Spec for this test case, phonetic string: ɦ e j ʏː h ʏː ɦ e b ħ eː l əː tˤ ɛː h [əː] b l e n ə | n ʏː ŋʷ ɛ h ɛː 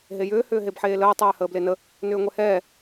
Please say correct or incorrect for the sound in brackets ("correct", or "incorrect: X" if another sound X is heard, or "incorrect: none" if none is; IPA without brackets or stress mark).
correct